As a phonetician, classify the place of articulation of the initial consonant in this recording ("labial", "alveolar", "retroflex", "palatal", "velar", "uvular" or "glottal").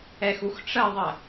velar